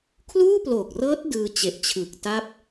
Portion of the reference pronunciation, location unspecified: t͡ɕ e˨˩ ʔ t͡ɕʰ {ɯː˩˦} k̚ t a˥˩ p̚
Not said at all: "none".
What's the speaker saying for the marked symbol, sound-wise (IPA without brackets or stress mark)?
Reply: ɯː˨˩